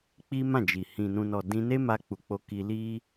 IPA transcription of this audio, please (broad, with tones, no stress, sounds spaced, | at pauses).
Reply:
k͡p i˦ m ã˦˨ d͡ʒ i˨ h ĩ˨ n ũ˨ n ɔ˨ d ĩ˧ n e˦ m a˧ k͡p u˨ k͡p o˧ k i˧ l i˦